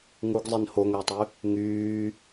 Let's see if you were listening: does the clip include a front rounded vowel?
yes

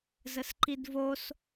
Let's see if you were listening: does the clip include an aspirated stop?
no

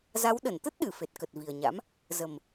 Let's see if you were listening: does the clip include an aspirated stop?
no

